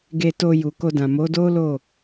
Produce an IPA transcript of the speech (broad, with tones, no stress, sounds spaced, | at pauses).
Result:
ɡ e˨ t o˨ j u˨ k o˧ d ã˨ m o˨˦ d o˦ l o˦˨